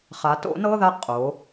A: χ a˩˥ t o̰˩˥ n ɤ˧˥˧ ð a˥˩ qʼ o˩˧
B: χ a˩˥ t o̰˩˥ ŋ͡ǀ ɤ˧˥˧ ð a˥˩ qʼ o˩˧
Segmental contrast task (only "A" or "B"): A